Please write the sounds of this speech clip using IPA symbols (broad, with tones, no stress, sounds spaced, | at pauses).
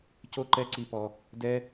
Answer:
c o˧ ǃ ɛ˧ ǀ i˧ p ɔ˧ | d ɛ˦